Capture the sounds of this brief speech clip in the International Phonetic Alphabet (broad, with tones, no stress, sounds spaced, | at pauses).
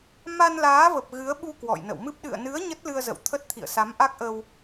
m a˧ n l aː˨˦ v ə˨˩ p̚ ɣ ɨ˨˦ ə̯ ɓ u˧ k w ɔ̰˧˨ j n ə̰˧˨ w m ɨ˦˥ p̚ ɗ ɨ̰˧˨ ə̯ n ɨ˨˦ ə̯ ɲ ə˦˥ t̚ l ɨ˧ ə̯ z ə̰˧˨ w t̪ʰ ə˦˥ t̚ t̪ʰ ḭ˧˨ ə̯ s a˨˦ m ʔ a˦˥ k̚ ʔ ə˧ w